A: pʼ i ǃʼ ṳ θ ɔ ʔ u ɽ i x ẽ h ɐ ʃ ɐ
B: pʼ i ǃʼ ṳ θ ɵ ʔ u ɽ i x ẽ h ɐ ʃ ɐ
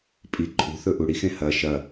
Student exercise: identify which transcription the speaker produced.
B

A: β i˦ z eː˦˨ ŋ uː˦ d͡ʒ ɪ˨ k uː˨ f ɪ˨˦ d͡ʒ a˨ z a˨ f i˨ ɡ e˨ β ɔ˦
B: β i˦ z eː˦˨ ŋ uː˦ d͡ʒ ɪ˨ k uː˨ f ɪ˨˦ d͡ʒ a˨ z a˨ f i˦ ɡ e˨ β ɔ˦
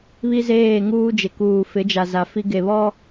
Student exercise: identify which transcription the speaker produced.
B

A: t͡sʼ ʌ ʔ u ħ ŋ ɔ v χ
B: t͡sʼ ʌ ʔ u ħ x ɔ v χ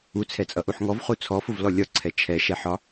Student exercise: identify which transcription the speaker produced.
A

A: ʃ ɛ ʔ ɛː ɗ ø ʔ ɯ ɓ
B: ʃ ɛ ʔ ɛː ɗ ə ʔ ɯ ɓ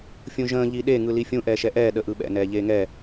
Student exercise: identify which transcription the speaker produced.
B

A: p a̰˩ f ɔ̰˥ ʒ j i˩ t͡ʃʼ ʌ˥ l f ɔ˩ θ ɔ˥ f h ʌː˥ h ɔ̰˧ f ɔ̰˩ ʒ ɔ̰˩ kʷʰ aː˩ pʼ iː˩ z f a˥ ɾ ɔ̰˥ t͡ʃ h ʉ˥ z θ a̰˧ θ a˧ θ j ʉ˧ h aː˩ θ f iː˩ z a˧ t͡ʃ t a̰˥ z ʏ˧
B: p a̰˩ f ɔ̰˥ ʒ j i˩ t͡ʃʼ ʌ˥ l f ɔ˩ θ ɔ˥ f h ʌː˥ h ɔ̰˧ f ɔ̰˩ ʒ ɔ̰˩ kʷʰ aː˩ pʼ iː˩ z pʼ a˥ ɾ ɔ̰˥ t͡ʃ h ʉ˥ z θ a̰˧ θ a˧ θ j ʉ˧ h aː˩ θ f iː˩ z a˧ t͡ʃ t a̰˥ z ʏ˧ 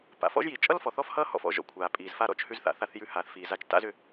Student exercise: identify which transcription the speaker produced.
A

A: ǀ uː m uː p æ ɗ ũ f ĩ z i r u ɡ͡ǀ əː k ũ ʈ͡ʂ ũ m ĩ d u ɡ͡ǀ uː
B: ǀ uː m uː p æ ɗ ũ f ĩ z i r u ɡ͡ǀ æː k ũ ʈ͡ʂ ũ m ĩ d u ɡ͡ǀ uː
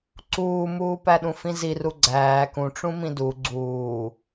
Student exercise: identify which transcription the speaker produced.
B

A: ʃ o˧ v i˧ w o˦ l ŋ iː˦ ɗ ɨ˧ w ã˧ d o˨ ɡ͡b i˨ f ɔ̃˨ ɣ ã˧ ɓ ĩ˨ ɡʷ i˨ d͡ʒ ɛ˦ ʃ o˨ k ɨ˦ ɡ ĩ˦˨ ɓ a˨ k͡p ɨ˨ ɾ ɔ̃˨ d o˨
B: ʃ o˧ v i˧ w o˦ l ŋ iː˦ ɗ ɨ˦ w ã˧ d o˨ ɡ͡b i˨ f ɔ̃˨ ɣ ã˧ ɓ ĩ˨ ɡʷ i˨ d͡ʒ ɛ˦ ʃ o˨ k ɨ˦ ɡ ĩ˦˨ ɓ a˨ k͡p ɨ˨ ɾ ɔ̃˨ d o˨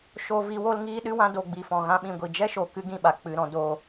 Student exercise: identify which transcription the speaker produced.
B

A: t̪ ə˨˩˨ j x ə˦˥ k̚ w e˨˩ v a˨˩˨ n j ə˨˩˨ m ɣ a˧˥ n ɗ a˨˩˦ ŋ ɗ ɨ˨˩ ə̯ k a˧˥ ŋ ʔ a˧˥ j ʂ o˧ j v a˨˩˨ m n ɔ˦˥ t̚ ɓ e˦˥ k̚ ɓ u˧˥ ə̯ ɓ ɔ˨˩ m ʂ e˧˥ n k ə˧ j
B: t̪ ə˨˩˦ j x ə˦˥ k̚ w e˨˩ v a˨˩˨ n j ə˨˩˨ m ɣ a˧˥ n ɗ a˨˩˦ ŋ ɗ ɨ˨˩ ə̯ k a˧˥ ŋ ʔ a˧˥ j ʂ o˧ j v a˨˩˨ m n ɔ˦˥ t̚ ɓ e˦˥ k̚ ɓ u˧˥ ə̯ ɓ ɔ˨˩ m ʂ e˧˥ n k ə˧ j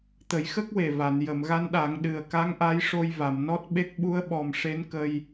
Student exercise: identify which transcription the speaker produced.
B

